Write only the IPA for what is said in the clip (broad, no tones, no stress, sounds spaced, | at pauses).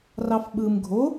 r ɑ f ɓ ɯ m ɡʱ o